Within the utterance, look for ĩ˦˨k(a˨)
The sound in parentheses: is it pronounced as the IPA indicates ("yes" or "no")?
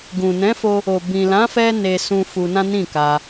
no